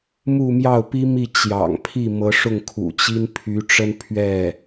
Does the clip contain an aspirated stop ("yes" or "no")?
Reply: yes